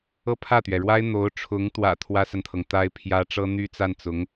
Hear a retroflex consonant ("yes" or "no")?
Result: yes